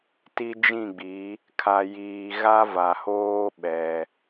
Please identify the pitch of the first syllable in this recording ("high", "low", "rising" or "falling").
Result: high